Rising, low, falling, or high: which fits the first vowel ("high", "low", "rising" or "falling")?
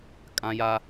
high